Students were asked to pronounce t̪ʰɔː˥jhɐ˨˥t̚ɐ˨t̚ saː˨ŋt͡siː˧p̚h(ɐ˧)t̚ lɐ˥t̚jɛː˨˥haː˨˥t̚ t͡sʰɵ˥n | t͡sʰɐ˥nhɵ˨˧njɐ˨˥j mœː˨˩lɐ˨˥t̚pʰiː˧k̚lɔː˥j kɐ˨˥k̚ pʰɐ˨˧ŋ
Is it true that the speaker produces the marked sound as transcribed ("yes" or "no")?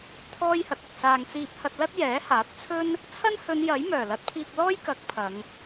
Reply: yes